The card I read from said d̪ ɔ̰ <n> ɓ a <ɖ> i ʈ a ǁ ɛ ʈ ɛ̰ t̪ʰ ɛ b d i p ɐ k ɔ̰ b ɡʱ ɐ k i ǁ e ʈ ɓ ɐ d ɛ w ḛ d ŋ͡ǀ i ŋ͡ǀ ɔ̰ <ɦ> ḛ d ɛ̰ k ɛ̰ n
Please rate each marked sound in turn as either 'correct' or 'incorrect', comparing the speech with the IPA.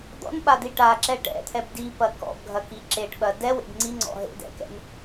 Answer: correct, incorrect: d̪, correct

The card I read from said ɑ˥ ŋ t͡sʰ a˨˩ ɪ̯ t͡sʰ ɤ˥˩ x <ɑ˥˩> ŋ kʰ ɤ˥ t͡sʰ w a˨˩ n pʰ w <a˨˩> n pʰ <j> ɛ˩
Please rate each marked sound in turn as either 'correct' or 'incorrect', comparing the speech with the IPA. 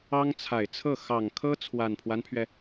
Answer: incorrect: ɑ˨˩, incorrect: a˦, incorrect: ɥ

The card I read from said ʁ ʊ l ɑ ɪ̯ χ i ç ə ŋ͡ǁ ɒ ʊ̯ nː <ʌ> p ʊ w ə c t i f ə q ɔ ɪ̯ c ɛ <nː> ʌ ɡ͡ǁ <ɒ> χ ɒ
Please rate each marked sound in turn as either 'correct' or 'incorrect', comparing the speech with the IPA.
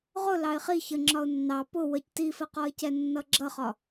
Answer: incorrect: ɑ, correct, incorrect: ʌ

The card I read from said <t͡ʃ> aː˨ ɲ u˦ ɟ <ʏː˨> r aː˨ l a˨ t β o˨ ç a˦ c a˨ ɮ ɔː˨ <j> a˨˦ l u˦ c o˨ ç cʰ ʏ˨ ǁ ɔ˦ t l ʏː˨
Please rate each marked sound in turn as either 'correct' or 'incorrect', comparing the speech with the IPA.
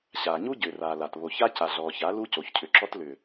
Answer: incorrect: ɕ, correct, incorrect: ç

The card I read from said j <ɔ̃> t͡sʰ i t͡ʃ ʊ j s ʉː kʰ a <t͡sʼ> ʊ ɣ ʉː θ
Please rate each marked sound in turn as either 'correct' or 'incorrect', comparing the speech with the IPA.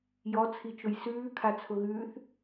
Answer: incorrect: ɔ, incorrect: t͡sʰ

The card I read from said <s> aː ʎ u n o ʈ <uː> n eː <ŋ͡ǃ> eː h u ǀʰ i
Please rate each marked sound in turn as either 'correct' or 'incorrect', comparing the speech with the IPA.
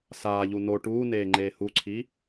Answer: correct, correct, correct

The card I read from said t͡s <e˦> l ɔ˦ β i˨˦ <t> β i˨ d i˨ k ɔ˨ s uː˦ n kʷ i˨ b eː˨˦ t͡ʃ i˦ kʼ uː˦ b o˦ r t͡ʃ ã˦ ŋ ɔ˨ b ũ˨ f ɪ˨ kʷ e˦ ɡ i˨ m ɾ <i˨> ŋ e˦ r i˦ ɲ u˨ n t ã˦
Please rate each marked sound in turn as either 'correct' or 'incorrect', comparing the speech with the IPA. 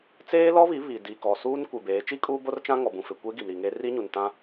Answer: incorrect: eː˦, incorrect: none, correct

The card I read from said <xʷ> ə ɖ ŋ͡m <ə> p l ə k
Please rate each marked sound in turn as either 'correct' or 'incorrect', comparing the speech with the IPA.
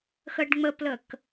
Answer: incorrect: x, correct

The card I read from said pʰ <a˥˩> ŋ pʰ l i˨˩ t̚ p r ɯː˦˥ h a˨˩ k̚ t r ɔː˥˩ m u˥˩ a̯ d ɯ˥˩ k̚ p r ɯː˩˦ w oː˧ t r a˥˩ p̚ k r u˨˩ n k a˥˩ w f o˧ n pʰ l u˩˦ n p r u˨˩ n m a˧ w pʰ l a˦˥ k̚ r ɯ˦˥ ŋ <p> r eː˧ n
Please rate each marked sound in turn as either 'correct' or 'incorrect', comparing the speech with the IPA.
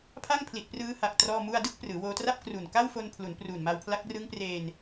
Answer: correct, correct

